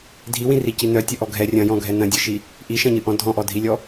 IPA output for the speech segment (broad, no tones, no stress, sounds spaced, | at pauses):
dʱ i w ĩ r i c i n œ tʲ œ ʔ ɔ ɡʱ ɛ rʲ ɐ̃ j ɔ̃ ɡʱ ɛ n ɐ̃ dʲ ɨ ʃ i | ʔ i ʃ ɐ̃ ɲ ɨ ʔ ɔ̃ dʱ ɔ̃ ʔ ɔ dʱ i lʲ ɔ